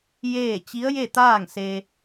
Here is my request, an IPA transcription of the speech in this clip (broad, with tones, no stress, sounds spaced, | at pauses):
j eː˥˨ t͡ɕ i˧˥ ə̯ j e˥˨ t̪ aː˥˨ ŋ s e˧